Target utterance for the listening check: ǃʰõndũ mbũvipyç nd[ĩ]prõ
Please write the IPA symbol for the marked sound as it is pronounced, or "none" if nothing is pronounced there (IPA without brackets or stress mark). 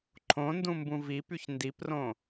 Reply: i